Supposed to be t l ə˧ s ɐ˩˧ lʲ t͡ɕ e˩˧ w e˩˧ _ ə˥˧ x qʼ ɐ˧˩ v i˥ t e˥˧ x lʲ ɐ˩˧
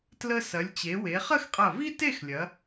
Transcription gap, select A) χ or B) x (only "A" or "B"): A